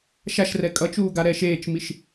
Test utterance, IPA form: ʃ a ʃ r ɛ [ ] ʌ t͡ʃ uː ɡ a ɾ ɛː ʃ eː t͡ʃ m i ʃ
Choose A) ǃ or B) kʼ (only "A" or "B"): B